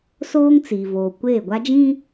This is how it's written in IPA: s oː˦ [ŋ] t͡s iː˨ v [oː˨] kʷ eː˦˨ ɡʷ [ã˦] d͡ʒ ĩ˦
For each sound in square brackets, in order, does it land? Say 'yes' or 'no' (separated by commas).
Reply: yes, yes, no